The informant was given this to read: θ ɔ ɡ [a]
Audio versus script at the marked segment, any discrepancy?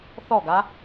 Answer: no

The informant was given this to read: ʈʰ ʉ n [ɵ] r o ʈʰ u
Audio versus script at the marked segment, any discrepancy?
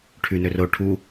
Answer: no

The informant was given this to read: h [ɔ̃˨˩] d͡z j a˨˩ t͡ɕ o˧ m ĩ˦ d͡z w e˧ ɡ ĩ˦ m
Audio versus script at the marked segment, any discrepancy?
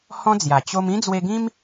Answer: yes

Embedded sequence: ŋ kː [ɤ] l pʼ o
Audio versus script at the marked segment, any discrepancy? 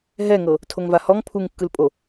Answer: yes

